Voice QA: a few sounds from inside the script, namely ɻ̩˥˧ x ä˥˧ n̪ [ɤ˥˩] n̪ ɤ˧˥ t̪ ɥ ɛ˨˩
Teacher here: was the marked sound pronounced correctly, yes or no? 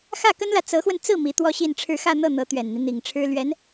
yes